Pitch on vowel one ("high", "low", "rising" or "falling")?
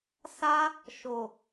high